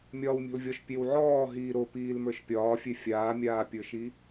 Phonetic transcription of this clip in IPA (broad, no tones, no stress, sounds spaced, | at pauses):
mʲ ɒː w mʲ ɔ̤ l vʲ ɔ ʃ pʲ e w ʕ ɔː ɦ iː ɾ o p iː l m ə˞ ʃ pʲ ɒː fʲ e fʲ aː mʲ aː pʲ ə˞ ʃ i